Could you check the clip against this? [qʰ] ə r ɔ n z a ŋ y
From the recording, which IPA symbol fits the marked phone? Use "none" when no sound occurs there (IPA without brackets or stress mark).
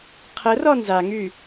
qʰ